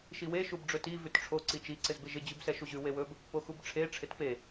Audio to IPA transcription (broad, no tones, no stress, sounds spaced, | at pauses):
ʃ i w e ʃ u b ɖ͡ʐ ɵ t i v ʉ t ʈ͡ʂʰ o ǀ i t͡ʃ i ǀ ɪ z b ɪ ʒ ɪ d͡ʑ ʉ b s ɛ ʃ u ʑ ʉ w e w ɵ b | p o x u b ʈ͡ʂʰ e ʈ͡ʂʰ ɪ t p e